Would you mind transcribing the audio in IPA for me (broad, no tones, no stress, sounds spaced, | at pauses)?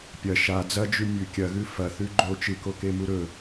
pʲ ɐ ʃ a d͡z ɐ d͡ʒ ʉ mʲ ʉ kʲ ɐ ɣ ʉ f ɐ θ ʉ ɡ͡ǃ o t͡ʃ ɨ k o k e m u ɾ ɵ